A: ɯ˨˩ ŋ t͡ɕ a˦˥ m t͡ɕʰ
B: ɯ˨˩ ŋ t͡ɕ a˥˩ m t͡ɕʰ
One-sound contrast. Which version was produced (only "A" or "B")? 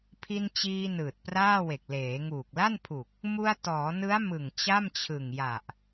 B